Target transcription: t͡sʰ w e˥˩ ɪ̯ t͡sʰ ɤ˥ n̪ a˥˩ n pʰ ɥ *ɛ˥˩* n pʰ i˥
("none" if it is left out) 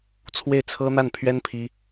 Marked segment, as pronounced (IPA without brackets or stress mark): ɛ˥